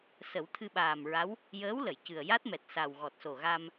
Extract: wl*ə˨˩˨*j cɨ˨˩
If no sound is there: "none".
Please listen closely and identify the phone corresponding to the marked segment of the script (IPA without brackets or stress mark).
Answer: ə˨˩˨